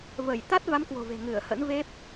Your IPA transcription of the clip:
v ə˧˩ j t̪ a˦˥ t̚ v a˨˦ m k w o̤˨˩ v e̤˨˩ ŋ ɨ˧˩ ə̯ h ə̰˧˥ n v e˦˥ p̚

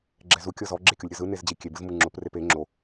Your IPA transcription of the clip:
ɡ͡ǁ ɛ z u kʲ ɤ z ɔ ɡ͡ǁ e kʲ o lʲ ɾʲ ɤ z ɯ n e z d͡ʑ i kʲ e b ɯ z m ɯ ŋ͡ǁ o p r e p e ŋ͡ǁ o

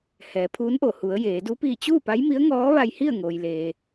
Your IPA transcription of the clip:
h ɛː˩˧ pʰ uː˧˥ n ʔ o˧˩ h u˩˧ ə̯ j eː˩˧ d u˧˥ p iː˧˩ t͡ɕ uː˥˨ p a˧˥ j m i˧˥ ə̯ ŋ ɔː˧˥ ʋ a˧ j h i˥˨ ə̯ ŋ oː˩ j l eː˩

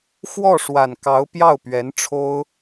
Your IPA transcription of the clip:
x w ɔ˥˩ ʂ w a˨˩ n k ɑ˧˥ ʊ̯ p j ɑ˥˩ ʊ̯ p ɥ ɛ˧˥ n ʈ͡ʂʰ o˥ ʊ̯

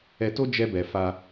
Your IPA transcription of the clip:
ɛ˧ t o˦ d͡ʒ ɛ˦ b ɛ˧ f a˧

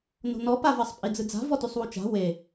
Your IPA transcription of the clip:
n o̤ n ɔ p a v ɜ sˤ pʼ i d͡z ɯ d͡z a̤ v ɔ t y sˤ w u t͡ʃ a̤ w e

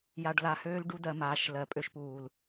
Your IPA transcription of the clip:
j a˨ ɖ l a˨ h øː˦ l ɖ u˦ d ɜ˨ m aː˨ ʃ l ɜ˨ pʼ ø˦ ʃ p uː˨ l

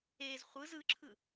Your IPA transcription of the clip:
e z χʷ ɯ z ɯ ǁʰ ɯ

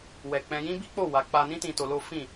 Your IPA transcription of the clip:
w ɛ˨ k͡p ɛ̃˧ j ĩ˦ b i˦ k͡p o˦˨ w a˨˦ k͡p a˧ n ĩ˦ t ĩ˧ t o˧ l o˦ f ĩ˦˨

